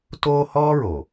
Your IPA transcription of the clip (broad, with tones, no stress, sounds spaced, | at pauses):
t oː˦ h ɔː˦ ɹ o˨